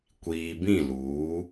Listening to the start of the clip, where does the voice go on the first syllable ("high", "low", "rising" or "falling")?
low